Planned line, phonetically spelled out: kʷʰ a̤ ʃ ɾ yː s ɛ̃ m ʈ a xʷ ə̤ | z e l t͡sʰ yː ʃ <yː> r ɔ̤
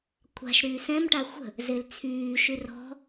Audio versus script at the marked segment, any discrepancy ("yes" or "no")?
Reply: yes